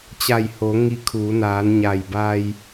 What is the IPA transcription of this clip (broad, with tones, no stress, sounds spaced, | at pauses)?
t͡ɕ a˧˩ j h o˩˧ ŋ i˧ kʰ uː˩˧ n aː˩˧ n ɲ a˧˩ j b a˧ j